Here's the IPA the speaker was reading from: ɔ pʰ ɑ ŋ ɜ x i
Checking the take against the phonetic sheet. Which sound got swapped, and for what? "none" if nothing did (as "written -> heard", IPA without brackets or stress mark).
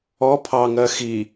none